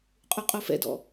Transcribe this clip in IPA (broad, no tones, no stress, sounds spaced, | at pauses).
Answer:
qʼ u qʼ o f ɛ̰ d ɔ̰